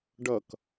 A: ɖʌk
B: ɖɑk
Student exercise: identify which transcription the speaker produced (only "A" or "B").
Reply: A